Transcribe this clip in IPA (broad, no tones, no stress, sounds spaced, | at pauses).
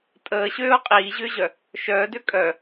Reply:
tʼ əː ɕ øː ʊ̯ qʼ iː ʑ ʏː ʑ œ | ʃ œː d ø kʼ œ